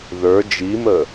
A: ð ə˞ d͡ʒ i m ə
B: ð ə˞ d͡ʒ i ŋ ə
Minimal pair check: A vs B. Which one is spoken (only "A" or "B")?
A